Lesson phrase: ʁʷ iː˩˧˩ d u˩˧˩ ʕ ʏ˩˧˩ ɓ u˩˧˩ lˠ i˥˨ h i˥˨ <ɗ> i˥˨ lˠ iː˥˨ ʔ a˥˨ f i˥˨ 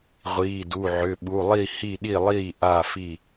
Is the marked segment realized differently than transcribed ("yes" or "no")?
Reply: no